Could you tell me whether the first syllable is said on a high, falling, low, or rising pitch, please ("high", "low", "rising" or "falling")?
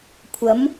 rising